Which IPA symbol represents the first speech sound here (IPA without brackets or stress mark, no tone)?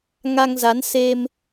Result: ŋ